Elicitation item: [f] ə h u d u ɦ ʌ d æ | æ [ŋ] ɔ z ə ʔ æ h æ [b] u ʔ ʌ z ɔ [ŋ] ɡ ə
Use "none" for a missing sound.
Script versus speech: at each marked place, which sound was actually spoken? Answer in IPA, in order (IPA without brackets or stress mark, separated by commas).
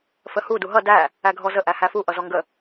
f, ɡʱ, f, ŋ